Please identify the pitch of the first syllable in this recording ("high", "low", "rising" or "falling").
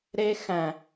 high